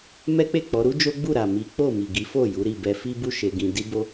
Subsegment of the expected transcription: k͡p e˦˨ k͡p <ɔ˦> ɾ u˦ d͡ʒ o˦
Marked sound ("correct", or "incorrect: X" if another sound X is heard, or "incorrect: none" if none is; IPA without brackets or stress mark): incorrect: ɔ˨˦